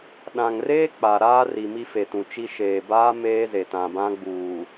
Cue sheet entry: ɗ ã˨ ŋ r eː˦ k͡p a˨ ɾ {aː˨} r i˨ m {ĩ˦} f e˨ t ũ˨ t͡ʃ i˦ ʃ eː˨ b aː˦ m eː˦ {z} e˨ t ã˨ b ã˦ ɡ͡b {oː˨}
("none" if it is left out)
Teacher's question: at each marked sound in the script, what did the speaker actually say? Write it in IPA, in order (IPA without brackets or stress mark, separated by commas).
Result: aː˦, i˦, z, uː˨